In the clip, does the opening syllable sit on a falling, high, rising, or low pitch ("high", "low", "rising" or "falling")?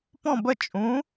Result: falling